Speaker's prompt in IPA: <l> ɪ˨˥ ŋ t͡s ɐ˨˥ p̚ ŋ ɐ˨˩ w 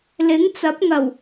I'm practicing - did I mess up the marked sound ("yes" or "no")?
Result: no